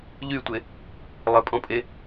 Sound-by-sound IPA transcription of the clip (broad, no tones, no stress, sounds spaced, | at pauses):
ʎ y tʷ e | lˠ ɪ pʼ ɔ̃ pʼ e